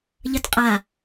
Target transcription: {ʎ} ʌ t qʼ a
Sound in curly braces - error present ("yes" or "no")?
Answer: no